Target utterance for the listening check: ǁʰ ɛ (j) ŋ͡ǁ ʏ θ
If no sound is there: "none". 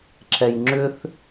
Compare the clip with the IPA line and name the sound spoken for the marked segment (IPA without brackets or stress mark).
j